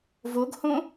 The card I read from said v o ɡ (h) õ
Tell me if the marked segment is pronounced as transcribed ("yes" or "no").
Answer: yes